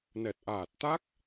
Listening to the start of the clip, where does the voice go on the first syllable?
low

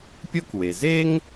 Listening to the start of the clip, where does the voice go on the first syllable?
high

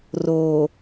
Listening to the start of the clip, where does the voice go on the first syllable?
low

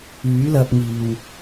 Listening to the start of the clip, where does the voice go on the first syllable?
rising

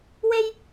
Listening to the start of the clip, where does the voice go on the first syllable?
high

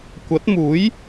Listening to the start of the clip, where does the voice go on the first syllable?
rising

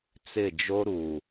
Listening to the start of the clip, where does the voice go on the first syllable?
falling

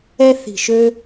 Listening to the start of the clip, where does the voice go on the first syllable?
high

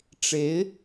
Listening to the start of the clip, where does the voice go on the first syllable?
rising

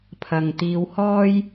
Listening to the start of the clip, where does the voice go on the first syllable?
low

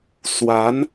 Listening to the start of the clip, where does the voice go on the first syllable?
rising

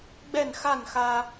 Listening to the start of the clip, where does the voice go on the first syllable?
falling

